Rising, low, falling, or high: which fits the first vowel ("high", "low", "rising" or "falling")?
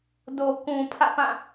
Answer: low